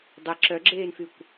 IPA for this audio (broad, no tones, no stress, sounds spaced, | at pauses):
dˤ e ǁ œ ɡ͡ǁ eː n f y kʷ